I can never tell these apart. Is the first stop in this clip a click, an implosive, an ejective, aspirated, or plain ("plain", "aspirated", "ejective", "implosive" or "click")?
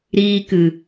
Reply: plain